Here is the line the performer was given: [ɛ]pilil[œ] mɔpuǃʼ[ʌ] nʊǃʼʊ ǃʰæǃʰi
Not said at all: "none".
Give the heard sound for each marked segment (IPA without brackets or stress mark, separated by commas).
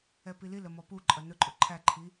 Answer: ɛ, ə, ʌ